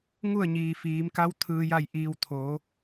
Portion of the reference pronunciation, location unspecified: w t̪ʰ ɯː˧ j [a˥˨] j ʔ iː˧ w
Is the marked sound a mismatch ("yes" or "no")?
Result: no